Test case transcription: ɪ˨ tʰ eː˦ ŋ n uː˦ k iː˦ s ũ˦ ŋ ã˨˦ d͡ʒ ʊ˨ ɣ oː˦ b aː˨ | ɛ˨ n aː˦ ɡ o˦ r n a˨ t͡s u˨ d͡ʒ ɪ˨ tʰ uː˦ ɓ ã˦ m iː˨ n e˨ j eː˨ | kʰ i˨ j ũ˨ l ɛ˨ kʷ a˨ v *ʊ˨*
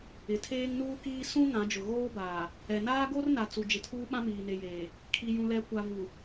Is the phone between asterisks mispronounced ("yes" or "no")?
yes